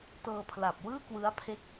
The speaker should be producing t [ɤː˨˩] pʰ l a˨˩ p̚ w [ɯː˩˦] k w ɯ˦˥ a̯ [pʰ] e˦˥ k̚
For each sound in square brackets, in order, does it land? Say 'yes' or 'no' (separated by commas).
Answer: no, no, yes